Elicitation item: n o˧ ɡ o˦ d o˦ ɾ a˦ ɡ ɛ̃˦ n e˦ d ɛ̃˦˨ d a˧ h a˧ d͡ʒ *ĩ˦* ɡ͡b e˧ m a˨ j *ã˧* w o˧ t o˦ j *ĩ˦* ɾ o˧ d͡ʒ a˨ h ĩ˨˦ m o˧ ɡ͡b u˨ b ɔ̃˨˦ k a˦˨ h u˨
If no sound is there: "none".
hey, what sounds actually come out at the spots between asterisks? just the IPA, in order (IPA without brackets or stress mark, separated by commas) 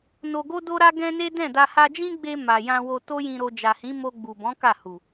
ĩ˦, ã˧, ĩ˧